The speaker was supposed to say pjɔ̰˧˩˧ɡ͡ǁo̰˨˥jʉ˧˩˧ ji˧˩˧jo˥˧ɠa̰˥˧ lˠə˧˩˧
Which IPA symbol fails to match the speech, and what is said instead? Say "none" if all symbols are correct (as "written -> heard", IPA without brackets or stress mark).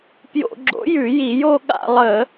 ɔ̰˧˩˧ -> o̰˧˩˧